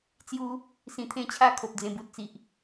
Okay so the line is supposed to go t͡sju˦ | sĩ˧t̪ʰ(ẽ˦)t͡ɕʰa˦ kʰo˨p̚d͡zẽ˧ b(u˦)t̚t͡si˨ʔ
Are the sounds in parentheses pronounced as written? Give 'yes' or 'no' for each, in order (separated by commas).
yes, no